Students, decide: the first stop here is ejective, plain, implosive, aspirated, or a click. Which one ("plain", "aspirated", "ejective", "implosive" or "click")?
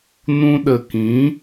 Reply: implosive